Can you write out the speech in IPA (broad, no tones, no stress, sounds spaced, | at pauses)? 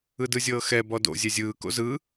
ɯ d ɯ zʲ ɤː x ɛ b ɔ d o̰ zʲ ɛ zʲ ɯː k o̰ z ɯ